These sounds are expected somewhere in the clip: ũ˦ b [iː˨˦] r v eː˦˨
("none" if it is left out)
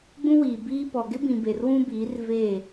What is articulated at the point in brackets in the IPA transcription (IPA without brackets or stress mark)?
iː˨˦